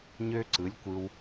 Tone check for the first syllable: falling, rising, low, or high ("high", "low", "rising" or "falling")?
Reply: high